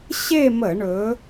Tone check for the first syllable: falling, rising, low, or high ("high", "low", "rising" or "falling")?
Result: falling